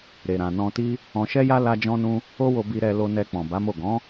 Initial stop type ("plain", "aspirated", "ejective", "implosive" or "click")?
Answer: plain